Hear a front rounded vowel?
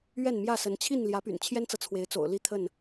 yes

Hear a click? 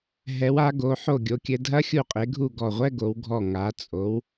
no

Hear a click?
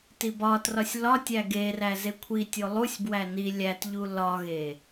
no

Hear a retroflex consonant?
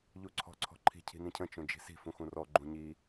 no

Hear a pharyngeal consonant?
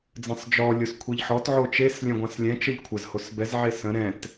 yes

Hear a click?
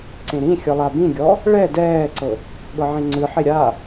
yes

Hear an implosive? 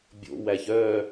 no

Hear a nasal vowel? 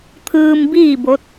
no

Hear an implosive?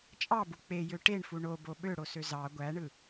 yes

